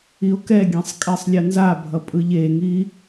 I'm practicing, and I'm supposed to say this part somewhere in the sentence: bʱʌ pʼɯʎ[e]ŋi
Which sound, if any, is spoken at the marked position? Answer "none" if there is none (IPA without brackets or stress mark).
e